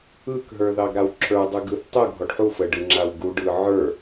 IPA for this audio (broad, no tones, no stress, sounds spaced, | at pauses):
ɯ k ɦ ə˞ ð ɑ ɡ ɾ a w ǁʰ ə˞ dˤ ɯ ɡ ɯ θ tˤ u ɡʱ ɔ ɖ ħ u f ə ɖ ɯ ŋ͡ǁ a w ɡ u ɖ ɯ ʕ ə˞